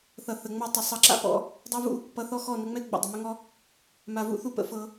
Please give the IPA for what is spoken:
θʌ˨θə˨ ŋ͡mɔ˦˨ tˤə˨ sˤʌ˧ǁa̰˦pɔ̰˦ | dˤa˦vṵ˦ | pʌ˧θɔ˦xɔ˦˨ nə˧ŋ͡mɛ˦ ɡ͡bə̰˨ dˤə˨mʏ˦ŋɔ˦ | ma˨vṵ˦ θu˧pə̰˧ fɤ˧

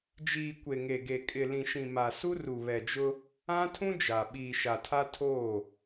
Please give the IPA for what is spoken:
d͡ʒiː˨ kʷe˨ŋe˨ɡe˨ kʼɪ˨lĩ˨ʃĩ˨ ma˨su˦ ru˨βɛ˨d͡ʒʊ˦ | ã˦tʰũ˦ d͡ʒa˨ ɓiː˨ʃa˨tʰa˦ tʰoː˦˨

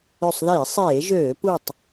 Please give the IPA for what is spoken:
ø˧˩sˤðiː˧˩˧ sˤeː˧˩˧ʒøː˧˩˧ pu˧˩tˤ

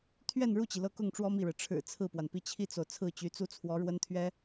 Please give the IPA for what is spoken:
t̪ʰɥɛ˥˧nɻu˥˩t͡ɕi˩ lɤ˥˧ kʊ˥˩ŋʈ͡ʂwɔ˥ mi˥˩ɻɻ̩˩ ʈ͡ʂʰɻ̩˨˩ t͡sʰɹ̩˥˩pwa˩npi˥˧ t͡ɕʰi˥˩t͡so˩ʊ̯ t͡sʰɹ̩˥˩t͡ɕy˧˥t͡su˥ t͡sʰwɔ˧˥ɻwə˥nt̪ʰɥɛ˥

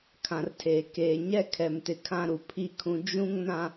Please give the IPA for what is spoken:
kʰã˨rtʰeː˨ keː˨ɲɛ˦ kʰɛ˨mtɪ˨kʰã˦ɾu˨ pʰi˦˨kʰũ˨ d͡ʒũ˦ŋ nã˨

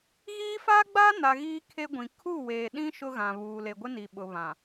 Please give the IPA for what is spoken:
ɣiː˦ faː˦ɡ͡baː˦na˨ ɣiː˦ kʰe˦ɡʷĩ˨ kʰu˦˨weː˨ɗĩ˦ ʃʊ˦ɣã˨βuː˨ le˨ɡʷɪ˦ni˨ ɓʊ˨βã˨

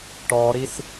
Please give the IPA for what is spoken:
ʈɔɾis

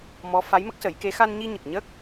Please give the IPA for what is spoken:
mɔ˧˥ fa˧˥jmə˦˥k̚sə˨˩˦jke˧˥ xa˧nɲi˧ɲə˨˩k̚ɲə˦˥k̚

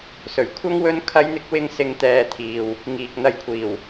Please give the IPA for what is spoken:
sɵ˨˩ɥkʷʰɐ˥ŋ wɵ˥nkʰɐ˥jn̪ɪ˥k̚ wɪ˥ŋsɪ˧ŋt̪ɛː˧t̪ʰiː˨w | ŋiː˨k̚n̪ɐ˧jkʷʰiː˨˩w

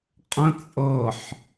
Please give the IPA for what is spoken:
qʼə̃ t͡sʼɤħ

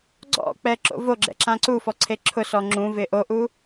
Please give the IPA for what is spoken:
ɡ͡ǀɔ̰k͡pɛ ǁo̰voɡ͡ǁɛ̰ ǁãǀufɔ ǀʰeǁʰʊsɔ ŋ͡ǁũvɪ ʔoʔu

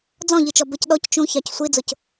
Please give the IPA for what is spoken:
d͡zɔ̃ʎit͡ʃɔ bəc ɗɔc t͡ʃũçɑc sʷid͡zʊc

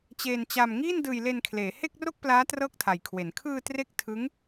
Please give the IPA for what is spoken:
t͡ɕeː˧nt͡ɕa˧m ŋiː˥˩ndɯː˧jle˧nkʰleː˩˦ he˥˩k̚ro˥˩k̚plaː˦˥ trɤː˥˩k̚tʰa˨˩jkʰwe˩˦n kʰɯː˧ tre˥˩k̚ tʰɯ˦˥ŋ

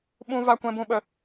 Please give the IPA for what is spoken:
ɓũ˦ va˦kʷɛ̃˦bũ˦ɓə˧

